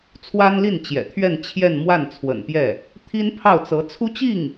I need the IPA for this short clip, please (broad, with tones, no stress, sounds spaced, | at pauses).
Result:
t͡sʰ w a˥ n l i˥˩ n t͡ɕ j ɛ̰˨˩ t̪ʰ ɥ ɛ˥˧ n t͡ɕʰ j ɛ˥˧ n m w a˥˩ n t͡sʰ w ə̰˨˩ n p j ɛ˥˩ | t̪ʰ i˥ n pʰ ɑ˥˩ ʊ̯ t͡s ɤ˧˥ t͡sʰ u˥ t͡ɕ i˥˩ ŋ